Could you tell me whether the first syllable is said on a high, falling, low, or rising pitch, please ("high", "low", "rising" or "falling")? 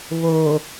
low